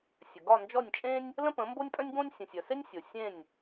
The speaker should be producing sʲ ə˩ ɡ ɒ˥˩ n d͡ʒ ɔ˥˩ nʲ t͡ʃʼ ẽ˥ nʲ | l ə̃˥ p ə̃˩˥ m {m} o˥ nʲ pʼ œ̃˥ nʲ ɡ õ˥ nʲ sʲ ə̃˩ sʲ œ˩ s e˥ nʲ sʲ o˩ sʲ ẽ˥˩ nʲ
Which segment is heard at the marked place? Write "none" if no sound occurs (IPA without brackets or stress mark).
b